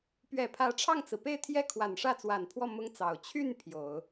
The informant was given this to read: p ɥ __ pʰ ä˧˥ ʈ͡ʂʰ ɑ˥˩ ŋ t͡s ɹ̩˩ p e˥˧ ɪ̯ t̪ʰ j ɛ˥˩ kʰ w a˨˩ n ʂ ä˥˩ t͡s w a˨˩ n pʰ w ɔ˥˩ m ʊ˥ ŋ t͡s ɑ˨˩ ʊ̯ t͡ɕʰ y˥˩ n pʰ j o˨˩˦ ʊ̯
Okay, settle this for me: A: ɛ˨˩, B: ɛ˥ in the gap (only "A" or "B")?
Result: A